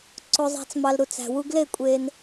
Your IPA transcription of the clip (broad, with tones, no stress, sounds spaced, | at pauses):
ǀ o˧ zˤ æ̤˧ t͡s m ɑ˧ l ɾ u˧ t͡s æ̤˧ w u˦ ɡ l e˦˨ kʷʼ e˧ n